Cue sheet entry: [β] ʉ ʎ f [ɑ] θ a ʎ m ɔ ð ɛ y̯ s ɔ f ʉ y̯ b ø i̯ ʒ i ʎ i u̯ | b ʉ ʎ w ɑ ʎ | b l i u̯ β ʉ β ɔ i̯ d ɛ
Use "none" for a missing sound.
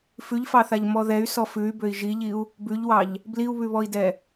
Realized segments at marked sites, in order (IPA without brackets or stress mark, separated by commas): f, ɑ